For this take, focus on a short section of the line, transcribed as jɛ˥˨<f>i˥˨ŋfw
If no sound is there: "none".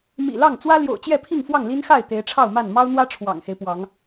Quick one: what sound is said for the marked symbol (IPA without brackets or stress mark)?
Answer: pʰ